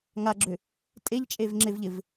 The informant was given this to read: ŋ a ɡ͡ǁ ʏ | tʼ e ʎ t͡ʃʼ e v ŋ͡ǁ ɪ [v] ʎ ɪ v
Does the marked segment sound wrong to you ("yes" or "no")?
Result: no